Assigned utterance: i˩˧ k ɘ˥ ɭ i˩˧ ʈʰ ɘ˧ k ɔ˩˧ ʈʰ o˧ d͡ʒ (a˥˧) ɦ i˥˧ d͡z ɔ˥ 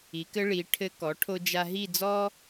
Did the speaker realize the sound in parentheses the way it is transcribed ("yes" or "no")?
no